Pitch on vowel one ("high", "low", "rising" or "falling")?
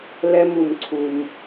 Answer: high